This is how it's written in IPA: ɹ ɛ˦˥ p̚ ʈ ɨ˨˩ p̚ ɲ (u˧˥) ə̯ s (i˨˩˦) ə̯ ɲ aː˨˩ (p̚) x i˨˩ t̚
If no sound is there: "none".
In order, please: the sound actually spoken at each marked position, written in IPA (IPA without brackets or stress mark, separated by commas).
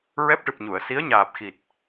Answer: u˨˩˨, i˧˥, p̚